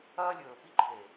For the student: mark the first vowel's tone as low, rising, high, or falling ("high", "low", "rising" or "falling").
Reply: high